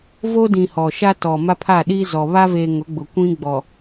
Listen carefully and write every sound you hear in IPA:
v o˦ d ĩ˨ h ɔ˨ ʃ a˦ t ɔ˨ m a˦ pʰ a˦˨ ɗ i˦ z ɔ˨ β a˦ v e˨ ŋ ʊ˨˦ ɡ͡b ʊ˨ kʷ ĩ˦ ɡ͡b ɔ˨

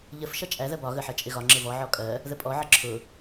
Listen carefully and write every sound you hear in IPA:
ʎ ə f ʃ ʌ t͡ʃʼ æ ð ɜ b ɒ ɣ ə ħ ɜ t͡ʃʼ ɪ ɣ ɒ ŋ͡ǁ ɪ v ɔ ʕ ɔ kʼ ɜ | ð ə pʼ ɔ ʕ ə ǁʰ ʊ

